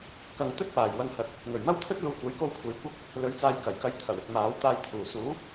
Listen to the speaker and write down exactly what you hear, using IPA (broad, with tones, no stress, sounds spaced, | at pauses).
k ɐ˨ ŋ t̪ ɵ˥ t̚ p aː˨˩ j w ɐ˧ ŋ h ɐ˨˥ t̚ | ŋ ɵ˨˩ ɥ m ɐ˥ w t̪ʰ ɵ˥ t̚ l uː˨ kʷ ɐ˨˥ j k o˧ w kʷʰ e˨˧ j kʷ ɐ˥ k̚ | l ɵ˨˥ ɥ t͡s aː˧ j k ɐ˨˩ j k ɐ˧ j t̪ʰ ɐ˨˩ w ɪ˧ k̚ m aː˨˥ w t̪ aː˧ j t̪ʰ uː˨˩ s uː˨˥ p̚